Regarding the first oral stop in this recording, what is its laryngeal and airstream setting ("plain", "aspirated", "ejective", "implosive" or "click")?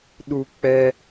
implosive